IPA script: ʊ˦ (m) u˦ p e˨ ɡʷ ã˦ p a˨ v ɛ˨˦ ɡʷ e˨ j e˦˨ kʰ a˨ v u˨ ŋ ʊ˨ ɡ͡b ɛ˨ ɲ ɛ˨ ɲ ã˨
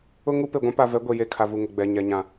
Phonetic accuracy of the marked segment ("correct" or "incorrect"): incorrect